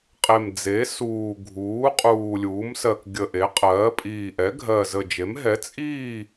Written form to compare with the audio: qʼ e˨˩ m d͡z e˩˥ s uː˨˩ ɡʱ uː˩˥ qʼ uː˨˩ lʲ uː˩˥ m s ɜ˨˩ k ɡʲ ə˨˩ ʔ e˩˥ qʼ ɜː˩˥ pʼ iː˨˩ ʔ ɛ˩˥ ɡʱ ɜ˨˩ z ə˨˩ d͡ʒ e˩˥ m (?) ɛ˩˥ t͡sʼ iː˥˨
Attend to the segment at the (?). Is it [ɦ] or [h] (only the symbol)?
ɦ